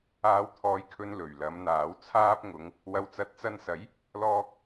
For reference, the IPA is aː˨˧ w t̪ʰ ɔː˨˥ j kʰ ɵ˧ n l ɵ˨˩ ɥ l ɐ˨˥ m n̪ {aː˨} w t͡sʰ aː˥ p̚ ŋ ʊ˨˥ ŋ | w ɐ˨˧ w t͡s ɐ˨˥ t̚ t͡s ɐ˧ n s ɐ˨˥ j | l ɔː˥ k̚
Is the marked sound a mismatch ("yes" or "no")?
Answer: yes